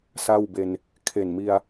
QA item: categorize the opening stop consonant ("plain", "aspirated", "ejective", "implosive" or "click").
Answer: plain